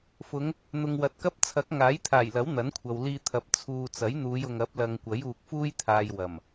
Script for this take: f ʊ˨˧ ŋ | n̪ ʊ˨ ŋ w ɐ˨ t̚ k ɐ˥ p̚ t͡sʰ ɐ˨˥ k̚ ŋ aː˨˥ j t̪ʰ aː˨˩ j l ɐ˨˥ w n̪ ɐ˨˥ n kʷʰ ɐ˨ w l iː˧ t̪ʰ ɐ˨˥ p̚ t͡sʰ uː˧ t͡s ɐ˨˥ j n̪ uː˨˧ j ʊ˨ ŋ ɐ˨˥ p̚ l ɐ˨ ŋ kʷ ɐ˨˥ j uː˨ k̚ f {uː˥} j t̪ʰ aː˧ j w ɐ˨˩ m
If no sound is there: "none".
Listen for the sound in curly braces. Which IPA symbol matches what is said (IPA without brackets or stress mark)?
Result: uː˥